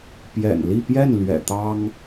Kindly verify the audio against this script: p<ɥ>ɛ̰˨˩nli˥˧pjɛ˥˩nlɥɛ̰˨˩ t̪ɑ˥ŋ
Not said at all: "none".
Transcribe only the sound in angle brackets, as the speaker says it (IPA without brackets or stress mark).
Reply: j